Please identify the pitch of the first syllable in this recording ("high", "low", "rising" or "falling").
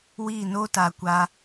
falling